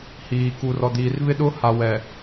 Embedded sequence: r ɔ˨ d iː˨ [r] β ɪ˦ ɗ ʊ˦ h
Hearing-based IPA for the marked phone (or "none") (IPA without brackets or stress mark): r